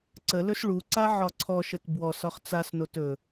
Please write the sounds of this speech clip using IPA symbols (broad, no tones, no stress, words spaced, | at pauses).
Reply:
ǀəlɵs ɭuǀa ʕɒǀʰɔʃət bwɔs ɒχt͡sasnot ɵ